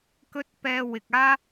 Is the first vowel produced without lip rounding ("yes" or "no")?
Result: no